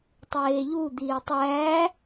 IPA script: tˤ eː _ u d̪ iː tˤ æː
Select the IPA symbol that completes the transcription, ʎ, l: ʎ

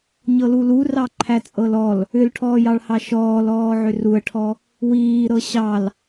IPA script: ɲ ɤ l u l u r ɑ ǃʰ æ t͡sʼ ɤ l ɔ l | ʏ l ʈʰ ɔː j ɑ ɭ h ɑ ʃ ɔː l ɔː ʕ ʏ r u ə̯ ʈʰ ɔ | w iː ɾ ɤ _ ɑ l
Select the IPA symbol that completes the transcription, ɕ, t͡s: ɕ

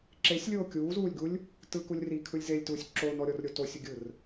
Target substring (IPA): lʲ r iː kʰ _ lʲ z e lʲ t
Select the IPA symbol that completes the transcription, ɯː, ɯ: ɯ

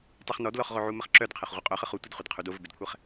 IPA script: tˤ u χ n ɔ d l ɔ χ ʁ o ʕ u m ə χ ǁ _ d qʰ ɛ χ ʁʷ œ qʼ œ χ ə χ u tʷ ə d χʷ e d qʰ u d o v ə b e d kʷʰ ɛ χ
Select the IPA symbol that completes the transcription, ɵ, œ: œ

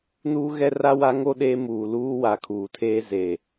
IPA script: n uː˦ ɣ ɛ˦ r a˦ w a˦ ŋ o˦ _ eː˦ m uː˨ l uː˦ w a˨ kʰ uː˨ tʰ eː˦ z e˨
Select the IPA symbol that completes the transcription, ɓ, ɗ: ɗ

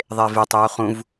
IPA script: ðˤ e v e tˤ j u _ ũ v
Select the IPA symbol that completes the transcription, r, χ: χ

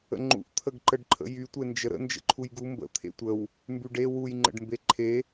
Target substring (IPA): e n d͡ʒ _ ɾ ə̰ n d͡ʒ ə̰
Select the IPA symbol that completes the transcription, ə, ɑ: ə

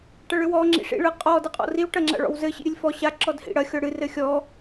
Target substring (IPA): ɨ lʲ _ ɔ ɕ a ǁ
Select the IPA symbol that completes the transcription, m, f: f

